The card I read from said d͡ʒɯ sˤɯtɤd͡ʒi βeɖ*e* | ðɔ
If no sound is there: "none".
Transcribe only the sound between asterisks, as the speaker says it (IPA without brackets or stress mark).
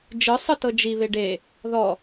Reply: e